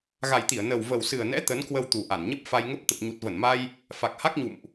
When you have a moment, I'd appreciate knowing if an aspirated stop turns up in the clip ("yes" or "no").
no